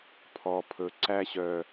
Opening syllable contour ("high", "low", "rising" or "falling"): low